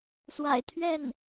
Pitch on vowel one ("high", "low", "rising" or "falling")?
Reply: low